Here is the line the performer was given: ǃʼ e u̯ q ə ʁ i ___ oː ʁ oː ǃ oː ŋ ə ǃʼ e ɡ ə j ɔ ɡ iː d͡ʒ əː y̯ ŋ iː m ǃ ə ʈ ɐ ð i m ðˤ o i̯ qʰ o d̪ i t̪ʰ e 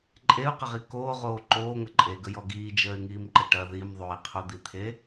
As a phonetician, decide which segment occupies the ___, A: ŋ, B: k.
B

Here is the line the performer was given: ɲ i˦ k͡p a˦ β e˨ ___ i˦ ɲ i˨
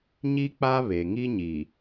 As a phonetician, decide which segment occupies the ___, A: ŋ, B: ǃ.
A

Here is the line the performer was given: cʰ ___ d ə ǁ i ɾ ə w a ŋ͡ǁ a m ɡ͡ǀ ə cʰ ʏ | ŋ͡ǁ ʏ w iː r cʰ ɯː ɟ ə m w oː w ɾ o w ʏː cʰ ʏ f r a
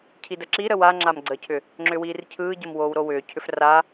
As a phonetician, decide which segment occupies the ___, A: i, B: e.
A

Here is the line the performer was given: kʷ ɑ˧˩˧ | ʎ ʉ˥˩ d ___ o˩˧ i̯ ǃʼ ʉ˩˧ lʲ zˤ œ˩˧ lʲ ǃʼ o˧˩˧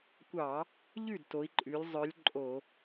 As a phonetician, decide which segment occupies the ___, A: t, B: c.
A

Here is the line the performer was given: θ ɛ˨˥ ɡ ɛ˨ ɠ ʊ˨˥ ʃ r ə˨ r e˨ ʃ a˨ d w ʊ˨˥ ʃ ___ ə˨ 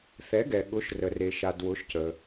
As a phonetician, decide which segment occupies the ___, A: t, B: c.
B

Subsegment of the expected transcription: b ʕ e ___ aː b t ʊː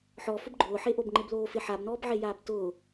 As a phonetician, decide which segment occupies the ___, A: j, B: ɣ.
A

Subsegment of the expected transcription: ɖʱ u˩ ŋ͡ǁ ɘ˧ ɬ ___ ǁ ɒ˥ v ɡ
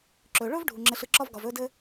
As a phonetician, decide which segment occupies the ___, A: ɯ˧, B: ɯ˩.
A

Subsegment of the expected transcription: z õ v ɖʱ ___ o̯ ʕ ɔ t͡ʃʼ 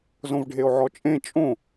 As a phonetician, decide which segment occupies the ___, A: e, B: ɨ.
A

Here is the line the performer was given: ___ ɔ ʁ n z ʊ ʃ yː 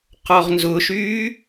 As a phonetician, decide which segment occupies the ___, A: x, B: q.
B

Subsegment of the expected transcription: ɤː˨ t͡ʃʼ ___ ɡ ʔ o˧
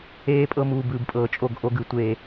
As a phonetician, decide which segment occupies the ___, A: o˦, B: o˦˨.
B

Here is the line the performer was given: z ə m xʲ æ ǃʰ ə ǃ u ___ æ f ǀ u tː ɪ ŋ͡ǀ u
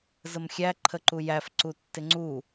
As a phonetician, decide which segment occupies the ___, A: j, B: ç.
A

